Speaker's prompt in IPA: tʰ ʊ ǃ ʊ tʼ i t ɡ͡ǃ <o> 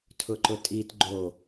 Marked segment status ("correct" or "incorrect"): correct